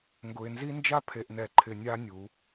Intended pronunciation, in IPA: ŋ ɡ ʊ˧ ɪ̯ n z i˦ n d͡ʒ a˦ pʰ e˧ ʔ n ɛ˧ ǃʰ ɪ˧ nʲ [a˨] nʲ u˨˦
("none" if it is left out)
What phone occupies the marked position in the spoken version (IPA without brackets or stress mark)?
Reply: a˦